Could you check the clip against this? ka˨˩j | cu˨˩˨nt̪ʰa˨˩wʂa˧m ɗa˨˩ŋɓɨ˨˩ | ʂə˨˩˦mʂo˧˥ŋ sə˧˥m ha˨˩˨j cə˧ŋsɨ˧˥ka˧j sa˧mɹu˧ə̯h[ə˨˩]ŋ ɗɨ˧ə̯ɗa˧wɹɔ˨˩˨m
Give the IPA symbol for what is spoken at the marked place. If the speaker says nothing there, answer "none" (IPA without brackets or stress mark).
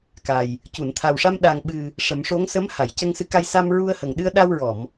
ə˨˩